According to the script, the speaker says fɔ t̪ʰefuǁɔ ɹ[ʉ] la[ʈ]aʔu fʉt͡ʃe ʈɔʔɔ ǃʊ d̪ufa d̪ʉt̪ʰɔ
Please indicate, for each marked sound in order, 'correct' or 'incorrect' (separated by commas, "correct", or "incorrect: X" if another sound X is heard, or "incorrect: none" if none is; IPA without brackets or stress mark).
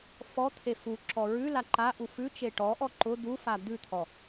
correct, incorrect: ǃ